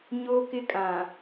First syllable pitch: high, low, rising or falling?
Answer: high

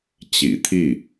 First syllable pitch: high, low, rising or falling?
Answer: low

